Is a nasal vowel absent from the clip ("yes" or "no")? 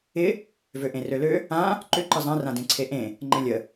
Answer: no